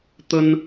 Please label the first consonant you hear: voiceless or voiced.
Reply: voiceless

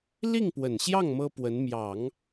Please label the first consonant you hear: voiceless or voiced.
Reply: voiced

